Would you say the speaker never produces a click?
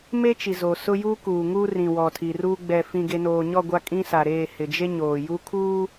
yes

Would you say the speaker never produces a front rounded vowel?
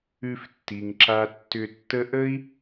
no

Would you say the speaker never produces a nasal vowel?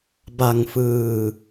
yes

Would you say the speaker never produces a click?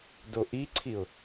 no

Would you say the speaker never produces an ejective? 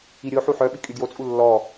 no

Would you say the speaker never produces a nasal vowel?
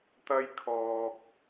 yes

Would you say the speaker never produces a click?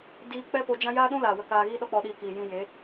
yes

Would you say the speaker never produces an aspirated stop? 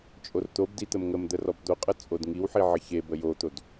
yes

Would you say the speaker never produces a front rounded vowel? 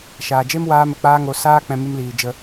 yes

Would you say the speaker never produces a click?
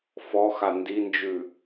yes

